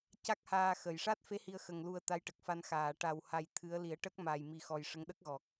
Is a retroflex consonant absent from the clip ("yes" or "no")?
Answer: no